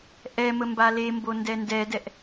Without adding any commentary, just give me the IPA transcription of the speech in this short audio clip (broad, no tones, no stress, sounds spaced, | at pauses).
ʔ ɛ m ə m b a l e m b o n d ɛ n d ɛ d ɛ ʔ